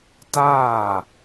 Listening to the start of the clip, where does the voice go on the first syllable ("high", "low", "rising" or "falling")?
falling